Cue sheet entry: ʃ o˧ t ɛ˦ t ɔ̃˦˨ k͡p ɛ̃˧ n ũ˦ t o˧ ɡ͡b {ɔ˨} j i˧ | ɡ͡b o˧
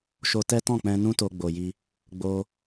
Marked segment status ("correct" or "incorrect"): incorrect